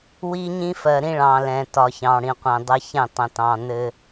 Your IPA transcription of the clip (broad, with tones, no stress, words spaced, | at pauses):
wi˦ɲĩ˦ fɜ˨ɾĩ˦ɭɑ̃˨ lɛ̃˨tɒ˨ çɑ̃˨ɽĩ˨qʷɛ̃˨dˤə˦ çɛ̃˦˨tˤə̃˨tɑ̃˨nɘ˦